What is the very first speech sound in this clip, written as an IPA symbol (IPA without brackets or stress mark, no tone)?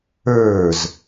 ə˞